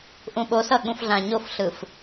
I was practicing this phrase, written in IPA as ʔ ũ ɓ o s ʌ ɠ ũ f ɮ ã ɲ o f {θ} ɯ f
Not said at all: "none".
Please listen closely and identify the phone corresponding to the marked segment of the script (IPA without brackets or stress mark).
ɬ